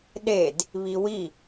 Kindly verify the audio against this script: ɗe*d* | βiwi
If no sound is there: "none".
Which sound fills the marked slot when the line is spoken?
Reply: d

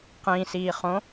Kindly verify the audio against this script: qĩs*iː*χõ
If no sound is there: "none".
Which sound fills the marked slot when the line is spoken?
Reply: iː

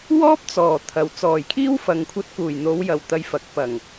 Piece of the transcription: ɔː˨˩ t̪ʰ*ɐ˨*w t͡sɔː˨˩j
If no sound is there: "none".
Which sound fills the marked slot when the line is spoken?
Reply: ɐ˨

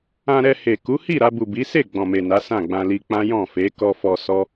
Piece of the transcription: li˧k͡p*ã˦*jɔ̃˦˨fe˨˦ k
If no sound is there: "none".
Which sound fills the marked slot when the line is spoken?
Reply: ã˦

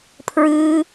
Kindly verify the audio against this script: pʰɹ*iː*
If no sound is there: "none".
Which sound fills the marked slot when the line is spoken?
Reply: ɨː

